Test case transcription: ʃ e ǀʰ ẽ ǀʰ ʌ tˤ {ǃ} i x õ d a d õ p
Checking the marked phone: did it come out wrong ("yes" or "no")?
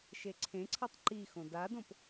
no